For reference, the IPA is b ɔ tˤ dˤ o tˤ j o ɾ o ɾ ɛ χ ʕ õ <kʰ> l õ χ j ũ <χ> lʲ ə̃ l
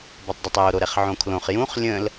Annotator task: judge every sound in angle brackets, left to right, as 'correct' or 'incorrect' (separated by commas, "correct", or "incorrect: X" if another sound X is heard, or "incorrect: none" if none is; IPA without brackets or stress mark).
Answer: correct, correct